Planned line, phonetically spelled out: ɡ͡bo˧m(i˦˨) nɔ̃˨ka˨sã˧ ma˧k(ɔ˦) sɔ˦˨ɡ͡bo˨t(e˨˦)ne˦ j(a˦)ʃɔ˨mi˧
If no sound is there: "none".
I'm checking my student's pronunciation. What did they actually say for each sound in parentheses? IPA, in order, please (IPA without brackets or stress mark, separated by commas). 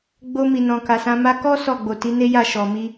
i˨, ɔ˦, i˨˦, a˦˨